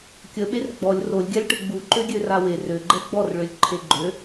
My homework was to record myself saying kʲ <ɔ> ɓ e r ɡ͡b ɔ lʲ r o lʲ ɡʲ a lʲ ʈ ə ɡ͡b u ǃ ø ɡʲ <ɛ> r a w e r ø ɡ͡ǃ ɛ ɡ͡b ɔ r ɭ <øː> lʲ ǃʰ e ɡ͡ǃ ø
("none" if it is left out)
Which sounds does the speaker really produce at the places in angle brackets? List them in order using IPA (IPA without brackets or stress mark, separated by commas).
ə, ø, ø